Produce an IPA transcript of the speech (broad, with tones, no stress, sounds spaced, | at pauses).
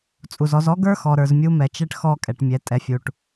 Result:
t͡sʼ u˨ z ɔ˨˦ z ɔ˦ ɡ ə˞˦ x ɔ˨ ɾ ə˞˨ z mʲ u˦ m ɛ˨ t͡ʃ ɛ˦ ʈ x ɔ˦ kʼ ɛ˨ ʈ mʲ ɛ˨˦ tʼ ɛ˨ fʲ u˨ ʈ